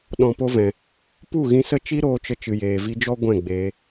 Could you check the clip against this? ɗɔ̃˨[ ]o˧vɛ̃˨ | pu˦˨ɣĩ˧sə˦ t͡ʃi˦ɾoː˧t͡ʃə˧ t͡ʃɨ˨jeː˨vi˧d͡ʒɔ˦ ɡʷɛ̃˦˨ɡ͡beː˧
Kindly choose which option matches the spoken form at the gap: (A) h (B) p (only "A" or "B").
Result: B